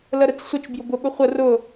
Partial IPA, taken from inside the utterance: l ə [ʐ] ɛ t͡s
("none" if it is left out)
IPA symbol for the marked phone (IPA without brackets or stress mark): ɾ